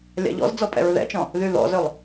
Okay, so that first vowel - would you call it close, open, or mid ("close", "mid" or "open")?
open